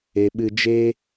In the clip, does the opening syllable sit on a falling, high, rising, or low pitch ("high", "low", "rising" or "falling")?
low